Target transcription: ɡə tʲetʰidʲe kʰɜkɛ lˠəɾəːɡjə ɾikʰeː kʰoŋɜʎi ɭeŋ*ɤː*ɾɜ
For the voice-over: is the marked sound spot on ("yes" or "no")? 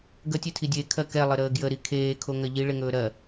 no